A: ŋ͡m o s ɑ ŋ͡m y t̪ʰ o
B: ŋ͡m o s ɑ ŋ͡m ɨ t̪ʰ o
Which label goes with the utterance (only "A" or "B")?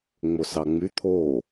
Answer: A